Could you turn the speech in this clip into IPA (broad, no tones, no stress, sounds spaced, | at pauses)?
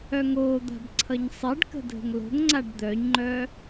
œ ŋ o d̪ a̤ b ǀʰ ʌ ɲ sˤ e ɖ k ə̤ dʱ ə̤ ŋ l o̤ ŋ ŋ͡ǀ a ɖ d̪ œ ɲ ŋ͡ǃ œ